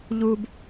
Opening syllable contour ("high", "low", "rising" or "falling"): high